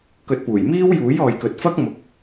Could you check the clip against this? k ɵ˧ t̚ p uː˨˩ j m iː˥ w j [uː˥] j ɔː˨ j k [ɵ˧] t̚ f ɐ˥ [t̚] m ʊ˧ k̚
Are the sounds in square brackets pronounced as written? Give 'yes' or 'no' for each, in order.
no, no, no

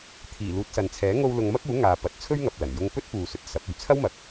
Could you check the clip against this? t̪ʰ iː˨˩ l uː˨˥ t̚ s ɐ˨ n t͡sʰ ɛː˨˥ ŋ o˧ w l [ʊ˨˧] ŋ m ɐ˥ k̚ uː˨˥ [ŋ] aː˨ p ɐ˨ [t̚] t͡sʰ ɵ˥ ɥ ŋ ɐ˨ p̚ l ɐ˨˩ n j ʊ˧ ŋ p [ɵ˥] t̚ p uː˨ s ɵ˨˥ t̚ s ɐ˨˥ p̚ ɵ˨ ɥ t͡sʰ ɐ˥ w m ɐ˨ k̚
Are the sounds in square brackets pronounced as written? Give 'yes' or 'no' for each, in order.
yes, yes, yes, yes

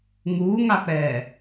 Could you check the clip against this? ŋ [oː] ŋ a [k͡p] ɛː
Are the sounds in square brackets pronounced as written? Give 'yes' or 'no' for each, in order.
no, yes

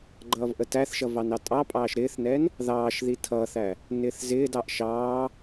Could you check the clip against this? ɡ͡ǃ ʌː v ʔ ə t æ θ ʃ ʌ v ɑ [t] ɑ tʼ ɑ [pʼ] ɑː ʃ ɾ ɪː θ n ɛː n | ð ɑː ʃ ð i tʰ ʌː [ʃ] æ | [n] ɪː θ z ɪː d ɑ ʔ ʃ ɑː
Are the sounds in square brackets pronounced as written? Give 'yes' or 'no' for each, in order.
no, yes, no, yes

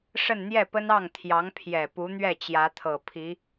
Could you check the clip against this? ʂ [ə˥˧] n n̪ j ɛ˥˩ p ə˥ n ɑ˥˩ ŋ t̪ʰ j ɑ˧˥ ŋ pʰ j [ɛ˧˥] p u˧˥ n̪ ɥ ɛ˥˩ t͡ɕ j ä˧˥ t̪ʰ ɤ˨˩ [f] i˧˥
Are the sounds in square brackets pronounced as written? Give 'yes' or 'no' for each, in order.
yes, no, no

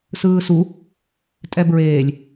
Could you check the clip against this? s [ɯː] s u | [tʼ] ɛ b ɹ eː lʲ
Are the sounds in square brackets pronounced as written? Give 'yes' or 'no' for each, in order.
yes, yes

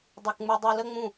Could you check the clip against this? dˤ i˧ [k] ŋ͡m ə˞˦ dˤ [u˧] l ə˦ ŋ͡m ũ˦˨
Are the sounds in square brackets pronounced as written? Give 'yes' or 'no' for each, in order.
yes, yes

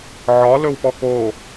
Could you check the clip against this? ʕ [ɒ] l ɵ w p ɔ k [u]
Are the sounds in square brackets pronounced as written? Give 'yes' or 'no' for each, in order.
yes, no

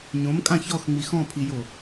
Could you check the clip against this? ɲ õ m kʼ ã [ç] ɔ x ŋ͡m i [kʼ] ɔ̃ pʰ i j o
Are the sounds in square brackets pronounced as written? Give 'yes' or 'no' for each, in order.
yes, no

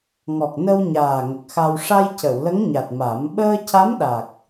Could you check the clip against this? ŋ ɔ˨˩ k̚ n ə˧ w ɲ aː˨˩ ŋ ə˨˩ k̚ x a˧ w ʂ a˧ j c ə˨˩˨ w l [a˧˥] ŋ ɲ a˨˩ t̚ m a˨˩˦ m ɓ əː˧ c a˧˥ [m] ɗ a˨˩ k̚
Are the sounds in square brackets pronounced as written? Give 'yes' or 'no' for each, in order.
no, yes

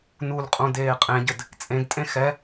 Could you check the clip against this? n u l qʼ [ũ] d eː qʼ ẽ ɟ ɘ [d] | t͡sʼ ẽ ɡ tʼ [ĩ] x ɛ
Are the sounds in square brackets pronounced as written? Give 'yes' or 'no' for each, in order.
yes, yes, no

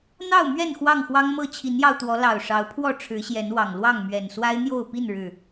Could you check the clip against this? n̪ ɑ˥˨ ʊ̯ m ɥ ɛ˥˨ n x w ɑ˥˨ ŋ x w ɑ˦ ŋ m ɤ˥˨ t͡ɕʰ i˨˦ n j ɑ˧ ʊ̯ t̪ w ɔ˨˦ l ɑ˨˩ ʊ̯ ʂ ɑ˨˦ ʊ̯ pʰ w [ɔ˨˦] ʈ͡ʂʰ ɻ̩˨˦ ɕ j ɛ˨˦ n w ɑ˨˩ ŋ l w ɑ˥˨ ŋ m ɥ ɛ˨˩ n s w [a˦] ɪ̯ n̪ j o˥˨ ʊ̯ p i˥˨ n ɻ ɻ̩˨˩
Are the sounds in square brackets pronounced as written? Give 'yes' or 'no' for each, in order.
no, yes

